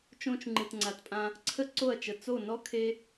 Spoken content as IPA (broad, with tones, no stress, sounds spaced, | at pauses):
t͡ʃ õ˧ t͡ʃ ŋ͡ǃ ɨ˨ t ŋ͡ǀ a˨ t pʼ ã˧ | ǀʰ ə˧ ǀ o˦˨ ɐ̯ t͡ʃ ə˨ t͡s o˦˨ n ɔ˦ kʰ e˦